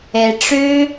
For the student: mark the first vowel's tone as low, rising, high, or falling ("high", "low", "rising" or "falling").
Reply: low